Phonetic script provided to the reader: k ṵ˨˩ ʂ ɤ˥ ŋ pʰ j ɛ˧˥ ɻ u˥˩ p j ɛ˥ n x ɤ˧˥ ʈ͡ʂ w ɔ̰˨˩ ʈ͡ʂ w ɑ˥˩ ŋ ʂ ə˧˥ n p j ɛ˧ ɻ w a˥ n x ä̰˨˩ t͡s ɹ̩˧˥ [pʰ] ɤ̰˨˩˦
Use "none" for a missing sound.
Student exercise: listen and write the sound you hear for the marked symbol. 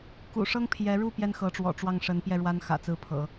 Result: pʰ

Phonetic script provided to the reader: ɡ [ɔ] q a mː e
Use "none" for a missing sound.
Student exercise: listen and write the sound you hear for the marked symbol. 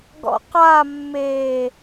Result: ɔ̰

